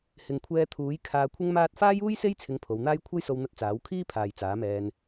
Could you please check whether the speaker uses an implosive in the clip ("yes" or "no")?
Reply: no